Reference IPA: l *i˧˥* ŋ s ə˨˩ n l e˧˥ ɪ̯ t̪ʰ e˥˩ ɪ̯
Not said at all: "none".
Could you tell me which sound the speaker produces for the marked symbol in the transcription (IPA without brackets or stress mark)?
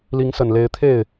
i˧˥